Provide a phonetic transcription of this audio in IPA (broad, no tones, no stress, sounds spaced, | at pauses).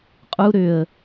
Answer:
qʼ u ɾ ʏ ə̯